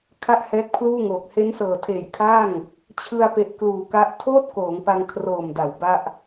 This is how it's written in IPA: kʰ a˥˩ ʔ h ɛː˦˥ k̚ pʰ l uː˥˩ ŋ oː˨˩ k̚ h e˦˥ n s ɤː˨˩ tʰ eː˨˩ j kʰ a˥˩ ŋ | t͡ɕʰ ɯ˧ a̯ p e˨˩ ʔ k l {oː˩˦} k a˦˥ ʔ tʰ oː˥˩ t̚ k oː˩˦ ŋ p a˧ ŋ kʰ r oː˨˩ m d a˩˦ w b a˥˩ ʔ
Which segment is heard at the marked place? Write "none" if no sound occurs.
uː˩˦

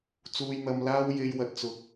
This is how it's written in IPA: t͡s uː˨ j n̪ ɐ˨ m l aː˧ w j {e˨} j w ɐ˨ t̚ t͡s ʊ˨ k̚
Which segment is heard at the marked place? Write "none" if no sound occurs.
e˨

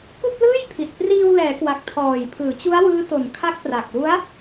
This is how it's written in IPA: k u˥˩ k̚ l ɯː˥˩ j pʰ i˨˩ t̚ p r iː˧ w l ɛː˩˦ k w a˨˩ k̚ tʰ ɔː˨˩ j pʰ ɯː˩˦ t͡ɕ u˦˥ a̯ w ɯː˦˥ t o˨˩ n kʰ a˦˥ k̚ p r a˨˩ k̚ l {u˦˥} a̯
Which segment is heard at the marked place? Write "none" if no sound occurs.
u˦˥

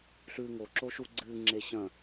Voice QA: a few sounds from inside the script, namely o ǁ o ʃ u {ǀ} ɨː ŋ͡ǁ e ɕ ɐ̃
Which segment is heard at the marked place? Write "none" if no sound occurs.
ɡ͡ǀ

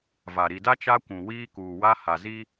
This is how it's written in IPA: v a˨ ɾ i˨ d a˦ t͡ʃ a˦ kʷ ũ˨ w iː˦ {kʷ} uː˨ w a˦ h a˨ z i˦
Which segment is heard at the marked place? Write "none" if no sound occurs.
k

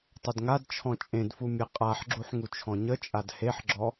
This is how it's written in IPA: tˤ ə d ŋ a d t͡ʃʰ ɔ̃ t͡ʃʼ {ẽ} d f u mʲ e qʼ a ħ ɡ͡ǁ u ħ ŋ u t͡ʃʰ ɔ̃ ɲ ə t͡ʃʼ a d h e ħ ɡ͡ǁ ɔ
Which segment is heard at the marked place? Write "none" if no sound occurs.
ẽ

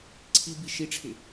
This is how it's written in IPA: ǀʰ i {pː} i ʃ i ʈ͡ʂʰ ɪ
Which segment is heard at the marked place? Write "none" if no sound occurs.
b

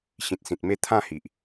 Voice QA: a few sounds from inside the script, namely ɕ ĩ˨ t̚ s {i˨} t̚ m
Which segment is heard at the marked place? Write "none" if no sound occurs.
ĩ˨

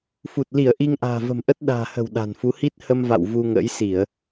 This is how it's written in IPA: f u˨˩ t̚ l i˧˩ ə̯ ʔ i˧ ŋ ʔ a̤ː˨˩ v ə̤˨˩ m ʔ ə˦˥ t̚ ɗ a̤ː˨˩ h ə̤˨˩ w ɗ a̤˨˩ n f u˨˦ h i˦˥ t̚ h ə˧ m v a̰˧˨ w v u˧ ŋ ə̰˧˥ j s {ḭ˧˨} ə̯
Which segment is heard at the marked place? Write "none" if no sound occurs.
i˧˩˨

